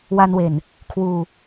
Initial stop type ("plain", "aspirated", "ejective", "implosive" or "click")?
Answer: aspirated